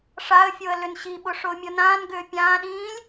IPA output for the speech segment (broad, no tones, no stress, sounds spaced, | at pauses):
ʂ a ə̯ fʲ o ə̯ l ʏ n ɕ i ɓ ʊ ʂ ʊː mʲ o n ãː n ɡ ʏː pʲ ãː ɗ ĩː lʲ